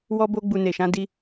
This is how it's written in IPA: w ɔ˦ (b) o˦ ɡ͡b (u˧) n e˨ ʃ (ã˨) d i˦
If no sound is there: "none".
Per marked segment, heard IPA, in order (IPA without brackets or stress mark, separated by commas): b, u˧, ã˧